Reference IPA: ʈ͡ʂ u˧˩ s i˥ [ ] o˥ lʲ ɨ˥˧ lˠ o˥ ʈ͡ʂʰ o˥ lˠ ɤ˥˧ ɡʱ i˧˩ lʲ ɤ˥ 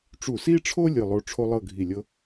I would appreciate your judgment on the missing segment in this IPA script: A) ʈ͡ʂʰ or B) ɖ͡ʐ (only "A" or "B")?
A